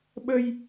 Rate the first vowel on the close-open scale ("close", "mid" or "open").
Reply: mid